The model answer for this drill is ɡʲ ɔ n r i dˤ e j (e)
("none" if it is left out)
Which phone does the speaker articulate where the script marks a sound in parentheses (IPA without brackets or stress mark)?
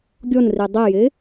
e